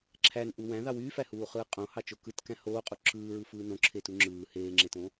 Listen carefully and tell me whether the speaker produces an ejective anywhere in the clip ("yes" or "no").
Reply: yes